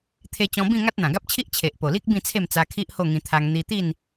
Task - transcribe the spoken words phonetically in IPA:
t̪ʰ e˧ t͡ɕ ɔ̃˧ b ĩ˥˧ ŋ a˦ t̚ n̪ ã˨˩ ɡ a˦ p̚ t͡ɕʰ i˦ ʔ t͡ɕʰ e˨ ʔ p o˨˩ l i˦ k̚ b ĩ˥˧ t͡sʰ e˥˧ m t͡s a˧ kʰ i˦ ʔ h o˥˧ ŋ ĩ˧ t̪ʰ a˧ ŋ n̪ i˧ t̪ i˥˧ n

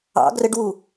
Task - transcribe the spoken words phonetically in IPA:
ɑ̰ ɡ r ə ɖ w u

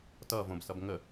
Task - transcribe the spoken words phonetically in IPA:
t ʌ v õ b s ʌ b ŋ ə

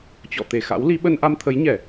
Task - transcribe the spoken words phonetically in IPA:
t͡ɕ ɔ̰˧˨ t̪ e˧˩ x a̰˧˥ w l i˨˦ ɓ ə˧ n ʔ a˧ m t̪ʰ ə˨˦ j ɲ ɛ˧˩˨

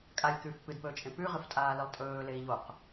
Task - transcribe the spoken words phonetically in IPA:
kʼ a lʲ k ʉː f p ɨ d p ɵː t͡ʃʼ ẽ p ʉ ʁ ɨ f tʼ aː l i lˠ tʼ ɵː l e i̯ ʎ o q

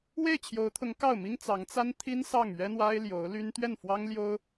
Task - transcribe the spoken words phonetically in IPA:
w e˥˩ ɪ̯ t͡ɕʰ j o˧˥ ʊ̯ t̪ʰ ʊ˧˥ ŋ k ɑ˥˩ ʊ̯ m i˥ ŋ t͡s ɑ˧˥ ŋ t͡s a˥ n t̪ʰ i˥ n s ɑ˥˩ ŋ ɥ ɛ˥ n̪ w a˥ ɪ̯ l j o˧˥ ʊ̯ l y˥ n t̪ ɥ ɛ˥˩ n f w ɑ˥ ŋ l j o˥ ʊ̯

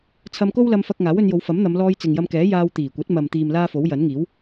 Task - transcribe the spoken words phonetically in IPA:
t͡sʰ ɐ˧ m k o˥ w l ɐ˧ m f ɐ˧ k̚ ŋ aː˨˥ w ɵ˧ n j o˨˧ w f ɐ˨˥ m n̪ ɐ˨˧ m l ɔː˧ j t͡s ɪ˨ ŋ j ɐ˧ m k ɛː˨˥ j aː˧ w t̪ iː˨˩ kʷ ɐ˨˥ t̚ m ɐ˨ m t̪ iː˨ m l aː˥ f o˨˥ w j ɐ˨˥ n ŋ iː˨˥ w

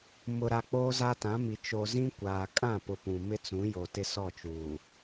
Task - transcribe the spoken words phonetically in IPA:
m ʊ˨ ɾ a˨ k͡p oː˦ z a˦ t ã˨˦ m i˨ t͡ʃ o˨ z ĩ˦ kʷ aː˨ kʼ ã˦˨ p ʊ˨ p ũ˨ m ɪ˦ t͡s ũ˨˦ j o˨ t ɪ˦ s ɔ˦˨ t͡ʃ uː˨

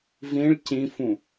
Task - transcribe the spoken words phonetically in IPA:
v ĩ ɭ c ĩ f ũ

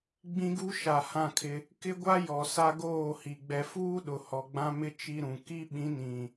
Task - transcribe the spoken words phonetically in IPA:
ɡ͡b ĩ˦ ɡ u˦ ʃ a˨ h ã˦˨ kʰ ɪ˦ | k ɪ˦ ɡʷ a˦ j ɔ˨ s a˦ ɡ oː˦˨ h i˨ ɡ͡b ɛ˨ f uː˦ ɗ ʊ˨ h ɔ˨ ɡ͡b ã˦ m ɪ˦ t͡ʃ i˨ ɾ ũ˨ k i˦ ɓ ĩ˨˦ n ĩ˨

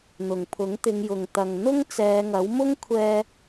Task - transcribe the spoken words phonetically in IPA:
n̪ ʊ˨˩ ŋ pʰ ʊ˨˥ ŋ t̪ ɪ˨˧ ŋ j ʊ˨ ŋ t̪ ɐ˨ ŋ n̪ ʊ˥ ŋ t͡s ɛː˨˧ ŋ ɐ˨˥ w m ʊ˥ ŋ kʷʰ ɛː˧

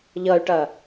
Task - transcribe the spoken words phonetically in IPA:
ʎ ʌ y̯ ʈ ɐ

